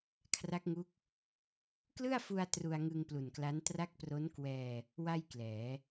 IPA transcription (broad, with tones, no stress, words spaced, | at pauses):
kʰra˦˥k̚ŋu˦˥k̚ | klɯ˥˩a̯fu˧a̯ tru˧a̯ŋɯ˧ŋplu˨˩nkla˦˥n tra˦˥k̚pro˦˥n kwɛː˧ | wa˥˩jklɛː˩˦